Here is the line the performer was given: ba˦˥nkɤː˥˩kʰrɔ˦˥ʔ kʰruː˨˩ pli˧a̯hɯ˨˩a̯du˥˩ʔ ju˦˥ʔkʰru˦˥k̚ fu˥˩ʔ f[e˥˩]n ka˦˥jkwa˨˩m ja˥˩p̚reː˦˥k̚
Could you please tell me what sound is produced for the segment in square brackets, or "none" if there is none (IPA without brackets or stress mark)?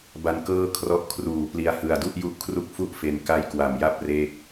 e˧